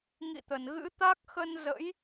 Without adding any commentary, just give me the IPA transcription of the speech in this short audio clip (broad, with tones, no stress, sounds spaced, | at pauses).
ŋ ḭ˧˨ t̪ ə˧˩ n ɣ ɨ̰˧˥ t̪ a˦˥ k̚ x ə˧ n z ə̰˧˥ j